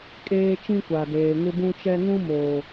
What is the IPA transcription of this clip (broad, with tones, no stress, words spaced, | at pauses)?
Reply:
kʼeː˦t͡ʃĩ˦kʷa˨deː˨ ŋɪ˦bũ˦t͡ʃɛ˦ ŋũ˦ moː˨